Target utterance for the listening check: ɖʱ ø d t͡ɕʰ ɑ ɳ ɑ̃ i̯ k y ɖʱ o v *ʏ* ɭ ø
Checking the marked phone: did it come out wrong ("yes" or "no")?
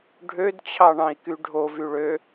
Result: yes